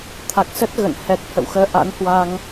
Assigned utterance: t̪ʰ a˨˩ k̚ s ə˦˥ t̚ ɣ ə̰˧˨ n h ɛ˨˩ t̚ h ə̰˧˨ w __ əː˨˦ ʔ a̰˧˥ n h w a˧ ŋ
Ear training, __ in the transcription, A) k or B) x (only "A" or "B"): B